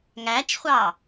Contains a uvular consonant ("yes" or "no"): yes